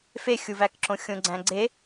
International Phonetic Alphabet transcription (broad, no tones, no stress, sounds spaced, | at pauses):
f e xʲ u v æ k ǁ õ xʲ õ ɡ͡ǀ æ̃ ɡ͡ǀ e